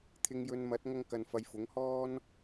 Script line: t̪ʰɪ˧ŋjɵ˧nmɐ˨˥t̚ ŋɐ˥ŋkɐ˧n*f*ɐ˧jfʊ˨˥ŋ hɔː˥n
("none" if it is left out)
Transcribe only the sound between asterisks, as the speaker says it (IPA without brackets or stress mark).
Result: f